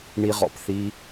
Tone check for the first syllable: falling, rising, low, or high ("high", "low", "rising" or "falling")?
high